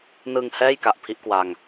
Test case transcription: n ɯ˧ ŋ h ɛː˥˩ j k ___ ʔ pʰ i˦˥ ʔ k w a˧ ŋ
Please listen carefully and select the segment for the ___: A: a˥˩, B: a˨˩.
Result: B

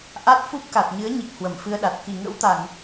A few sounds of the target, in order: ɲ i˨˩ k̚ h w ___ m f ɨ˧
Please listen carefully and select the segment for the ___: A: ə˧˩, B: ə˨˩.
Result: A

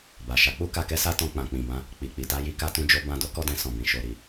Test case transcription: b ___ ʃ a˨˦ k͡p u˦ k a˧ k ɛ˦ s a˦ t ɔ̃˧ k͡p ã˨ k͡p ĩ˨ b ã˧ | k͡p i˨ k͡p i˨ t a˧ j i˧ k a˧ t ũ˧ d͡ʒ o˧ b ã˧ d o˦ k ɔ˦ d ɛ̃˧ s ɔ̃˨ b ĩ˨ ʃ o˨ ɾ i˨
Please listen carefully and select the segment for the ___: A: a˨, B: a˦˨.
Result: A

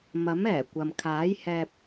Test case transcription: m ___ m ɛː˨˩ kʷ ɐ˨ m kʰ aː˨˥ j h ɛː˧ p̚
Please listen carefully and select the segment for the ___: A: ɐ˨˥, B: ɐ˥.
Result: A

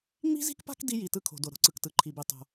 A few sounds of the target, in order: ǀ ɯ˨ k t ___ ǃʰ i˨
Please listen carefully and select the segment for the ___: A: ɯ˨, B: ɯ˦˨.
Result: A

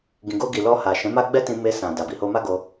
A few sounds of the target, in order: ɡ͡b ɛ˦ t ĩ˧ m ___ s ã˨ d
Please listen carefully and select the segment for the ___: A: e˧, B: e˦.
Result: A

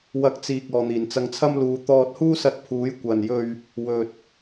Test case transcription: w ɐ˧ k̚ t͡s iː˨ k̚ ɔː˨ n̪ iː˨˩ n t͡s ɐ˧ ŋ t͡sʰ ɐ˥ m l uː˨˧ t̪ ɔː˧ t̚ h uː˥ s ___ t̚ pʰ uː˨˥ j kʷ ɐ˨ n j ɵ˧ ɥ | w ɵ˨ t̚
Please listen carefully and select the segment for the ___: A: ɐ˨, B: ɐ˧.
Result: B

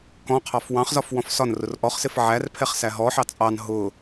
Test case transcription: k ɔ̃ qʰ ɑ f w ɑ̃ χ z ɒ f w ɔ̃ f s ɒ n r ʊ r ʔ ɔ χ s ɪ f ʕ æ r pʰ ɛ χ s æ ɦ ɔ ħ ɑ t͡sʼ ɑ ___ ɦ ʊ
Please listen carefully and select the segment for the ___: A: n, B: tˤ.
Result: A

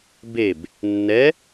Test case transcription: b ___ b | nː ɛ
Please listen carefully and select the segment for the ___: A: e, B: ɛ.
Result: A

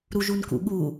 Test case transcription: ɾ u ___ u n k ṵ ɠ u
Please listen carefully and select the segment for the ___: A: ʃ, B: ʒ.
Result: B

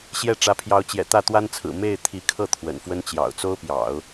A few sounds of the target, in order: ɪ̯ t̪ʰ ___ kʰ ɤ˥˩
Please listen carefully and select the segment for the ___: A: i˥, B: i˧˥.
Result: B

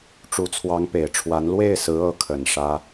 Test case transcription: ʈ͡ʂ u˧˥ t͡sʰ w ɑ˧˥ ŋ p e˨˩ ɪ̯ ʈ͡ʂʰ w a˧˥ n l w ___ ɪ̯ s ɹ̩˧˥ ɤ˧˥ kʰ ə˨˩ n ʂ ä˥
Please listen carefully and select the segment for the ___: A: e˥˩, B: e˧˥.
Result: A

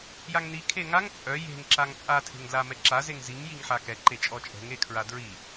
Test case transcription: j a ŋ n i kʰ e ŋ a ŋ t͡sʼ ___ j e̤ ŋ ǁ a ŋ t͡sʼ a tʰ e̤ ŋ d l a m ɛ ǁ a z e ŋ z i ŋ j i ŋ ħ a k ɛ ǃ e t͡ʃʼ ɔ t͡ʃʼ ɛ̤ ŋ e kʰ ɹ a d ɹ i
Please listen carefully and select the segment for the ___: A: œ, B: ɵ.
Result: A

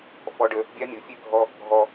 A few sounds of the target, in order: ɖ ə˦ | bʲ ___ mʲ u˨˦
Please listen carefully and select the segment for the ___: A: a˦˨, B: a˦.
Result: B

